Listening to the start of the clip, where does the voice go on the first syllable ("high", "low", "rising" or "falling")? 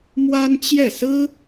high